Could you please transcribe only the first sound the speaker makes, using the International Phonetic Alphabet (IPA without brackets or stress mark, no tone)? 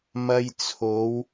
m